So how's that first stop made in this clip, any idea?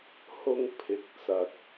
aspirated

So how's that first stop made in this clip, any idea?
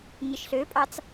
ejective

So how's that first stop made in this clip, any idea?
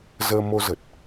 plain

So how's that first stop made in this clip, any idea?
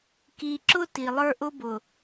plain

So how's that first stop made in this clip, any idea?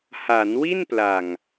plain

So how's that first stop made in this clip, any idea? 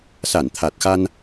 aspirated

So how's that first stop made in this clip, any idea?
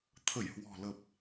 aspirated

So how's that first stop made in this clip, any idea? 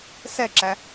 click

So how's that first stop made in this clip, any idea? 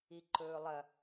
click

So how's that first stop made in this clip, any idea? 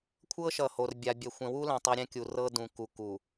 aspirated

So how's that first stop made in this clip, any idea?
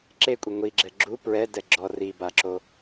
click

